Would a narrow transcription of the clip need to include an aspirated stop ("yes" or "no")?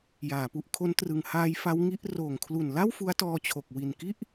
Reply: yes